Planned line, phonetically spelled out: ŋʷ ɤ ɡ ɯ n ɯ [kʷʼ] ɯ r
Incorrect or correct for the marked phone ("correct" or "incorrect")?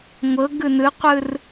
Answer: incorrect